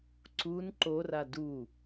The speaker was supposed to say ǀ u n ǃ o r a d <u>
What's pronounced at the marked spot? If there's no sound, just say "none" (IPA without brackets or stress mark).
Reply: u